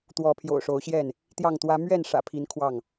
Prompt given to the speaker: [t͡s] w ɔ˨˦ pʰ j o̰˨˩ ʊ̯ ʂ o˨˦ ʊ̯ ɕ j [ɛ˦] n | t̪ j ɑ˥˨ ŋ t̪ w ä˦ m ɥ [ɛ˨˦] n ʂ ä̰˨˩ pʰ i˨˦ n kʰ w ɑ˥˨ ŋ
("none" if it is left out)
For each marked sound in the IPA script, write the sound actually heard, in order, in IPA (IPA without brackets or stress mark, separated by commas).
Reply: t̪, ɛ˥˨, ɛ˥˨